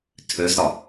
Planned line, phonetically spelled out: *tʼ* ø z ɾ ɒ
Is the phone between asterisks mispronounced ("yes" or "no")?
yes